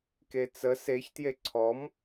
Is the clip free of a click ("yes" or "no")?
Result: no